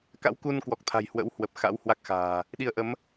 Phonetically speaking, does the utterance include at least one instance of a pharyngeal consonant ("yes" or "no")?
no